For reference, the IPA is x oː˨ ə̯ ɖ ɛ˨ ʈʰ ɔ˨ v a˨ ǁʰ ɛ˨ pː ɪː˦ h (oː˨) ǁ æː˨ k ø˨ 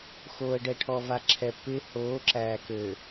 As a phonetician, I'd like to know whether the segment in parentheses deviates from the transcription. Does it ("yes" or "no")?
yes